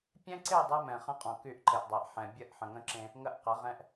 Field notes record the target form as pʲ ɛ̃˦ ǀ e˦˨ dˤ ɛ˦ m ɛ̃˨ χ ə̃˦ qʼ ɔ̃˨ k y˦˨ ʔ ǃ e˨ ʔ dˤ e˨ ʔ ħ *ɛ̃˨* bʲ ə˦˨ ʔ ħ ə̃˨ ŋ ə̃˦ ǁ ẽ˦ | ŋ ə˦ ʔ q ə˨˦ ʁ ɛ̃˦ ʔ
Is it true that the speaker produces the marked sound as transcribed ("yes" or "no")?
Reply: yes